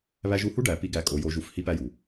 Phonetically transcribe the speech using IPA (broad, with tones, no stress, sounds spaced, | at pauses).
β æ˧ ʒ u˧ h u˦ ɖ æ˨ p i˦ ɡ æ˧ kʼ o˨˦ j o˧ ʒ u˧ f h i˦ p æ˦ j u˨